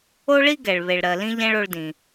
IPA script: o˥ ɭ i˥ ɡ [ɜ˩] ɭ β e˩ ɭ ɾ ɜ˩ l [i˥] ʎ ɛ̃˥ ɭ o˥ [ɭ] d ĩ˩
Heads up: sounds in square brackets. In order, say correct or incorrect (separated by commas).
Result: incorrect, incorrect, correct